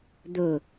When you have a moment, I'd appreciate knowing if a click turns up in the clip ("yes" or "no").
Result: no